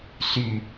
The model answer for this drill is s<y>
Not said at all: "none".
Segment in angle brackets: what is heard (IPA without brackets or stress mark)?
y